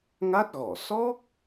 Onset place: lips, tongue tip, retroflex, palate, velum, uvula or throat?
velum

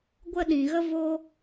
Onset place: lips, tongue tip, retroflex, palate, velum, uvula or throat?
velum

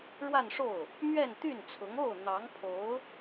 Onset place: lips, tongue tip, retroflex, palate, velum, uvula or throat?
retroflex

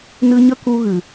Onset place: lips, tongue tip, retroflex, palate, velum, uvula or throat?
tongue tip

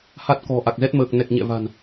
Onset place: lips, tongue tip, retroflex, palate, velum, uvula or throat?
throat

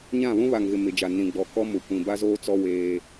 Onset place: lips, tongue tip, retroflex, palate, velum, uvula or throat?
palate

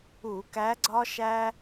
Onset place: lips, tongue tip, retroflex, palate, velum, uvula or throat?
velum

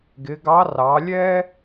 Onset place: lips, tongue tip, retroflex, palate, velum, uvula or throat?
velum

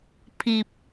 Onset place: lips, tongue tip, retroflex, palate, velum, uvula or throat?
lips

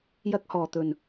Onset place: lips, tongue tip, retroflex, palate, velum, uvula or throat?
palate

